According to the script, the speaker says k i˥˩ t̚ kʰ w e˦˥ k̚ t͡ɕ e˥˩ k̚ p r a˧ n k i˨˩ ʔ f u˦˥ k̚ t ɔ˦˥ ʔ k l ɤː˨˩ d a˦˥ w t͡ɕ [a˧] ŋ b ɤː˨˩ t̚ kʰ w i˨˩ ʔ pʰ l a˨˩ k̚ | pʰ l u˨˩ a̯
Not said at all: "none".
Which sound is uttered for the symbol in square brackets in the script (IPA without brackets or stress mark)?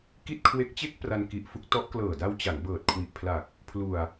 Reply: a˩˦